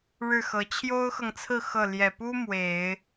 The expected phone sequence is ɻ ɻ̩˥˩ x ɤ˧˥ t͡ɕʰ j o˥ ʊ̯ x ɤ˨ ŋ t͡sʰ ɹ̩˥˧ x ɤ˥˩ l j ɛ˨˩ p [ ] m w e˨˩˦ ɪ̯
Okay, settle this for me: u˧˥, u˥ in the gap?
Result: u˥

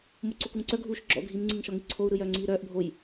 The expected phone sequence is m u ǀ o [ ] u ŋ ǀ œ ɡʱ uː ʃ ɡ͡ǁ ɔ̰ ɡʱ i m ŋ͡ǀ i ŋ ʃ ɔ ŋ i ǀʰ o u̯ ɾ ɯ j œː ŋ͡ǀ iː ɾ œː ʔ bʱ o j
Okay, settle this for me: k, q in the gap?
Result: k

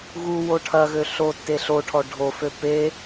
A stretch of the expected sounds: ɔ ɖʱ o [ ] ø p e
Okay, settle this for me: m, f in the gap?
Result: f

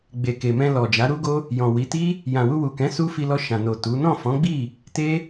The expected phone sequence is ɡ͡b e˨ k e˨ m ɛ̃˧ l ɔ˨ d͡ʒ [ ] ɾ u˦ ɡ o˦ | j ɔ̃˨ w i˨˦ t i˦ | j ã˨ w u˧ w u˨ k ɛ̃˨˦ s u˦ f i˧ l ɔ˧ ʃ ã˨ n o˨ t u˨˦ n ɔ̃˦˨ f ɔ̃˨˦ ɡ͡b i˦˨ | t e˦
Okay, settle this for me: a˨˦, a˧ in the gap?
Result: a˨˦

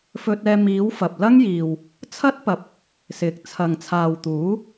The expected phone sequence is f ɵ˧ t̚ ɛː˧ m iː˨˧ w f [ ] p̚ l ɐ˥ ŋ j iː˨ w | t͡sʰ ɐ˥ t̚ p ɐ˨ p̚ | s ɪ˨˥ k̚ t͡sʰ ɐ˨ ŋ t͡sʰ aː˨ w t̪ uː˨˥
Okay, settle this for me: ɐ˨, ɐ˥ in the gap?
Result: ɐ˨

